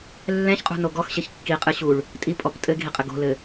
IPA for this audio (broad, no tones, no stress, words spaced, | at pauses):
lːɛ̃çqʼṳno ɡɔxɕeç kːiqʼɨɕuɭ | tʼipʼɔp tʼɘɡʱiqʼɘ ɡo̤lɘ